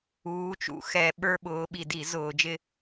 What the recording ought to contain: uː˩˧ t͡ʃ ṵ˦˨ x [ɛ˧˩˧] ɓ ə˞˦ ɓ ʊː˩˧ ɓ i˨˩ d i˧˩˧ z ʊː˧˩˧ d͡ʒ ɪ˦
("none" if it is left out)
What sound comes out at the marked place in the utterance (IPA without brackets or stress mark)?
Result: ɛ˧˩˧